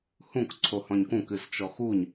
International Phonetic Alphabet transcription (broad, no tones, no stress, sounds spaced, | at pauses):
h ũ k ǀʰ o h ɔ̃ ɲ k ũ k ɨ z t͡ʃ ɔ x u ɲ